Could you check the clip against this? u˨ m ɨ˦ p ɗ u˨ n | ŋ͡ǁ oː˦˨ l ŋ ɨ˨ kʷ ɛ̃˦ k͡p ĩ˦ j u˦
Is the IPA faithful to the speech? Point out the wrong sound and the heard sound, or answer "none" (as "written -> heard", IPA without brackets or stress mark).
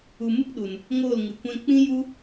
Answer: ŋ͡ǁ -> ŋ